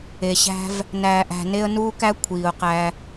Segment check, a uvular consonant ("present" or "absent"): present